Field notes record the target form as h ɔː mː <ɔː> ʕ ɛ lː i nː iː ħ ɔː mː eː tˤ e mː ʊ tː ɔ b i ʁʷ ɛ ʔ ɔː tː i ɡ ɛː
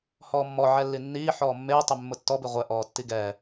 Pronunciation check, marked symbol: incorrect: ɔ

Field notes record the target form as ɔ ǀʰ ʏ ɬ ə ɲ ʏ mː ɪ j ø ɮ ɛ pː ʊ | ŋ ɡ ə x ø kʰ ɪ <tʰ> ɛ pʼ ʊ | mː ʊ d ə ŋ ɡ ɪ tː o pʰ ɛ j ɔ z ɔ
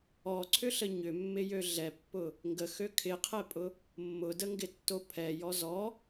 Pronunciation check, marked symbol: incorrect: qʰ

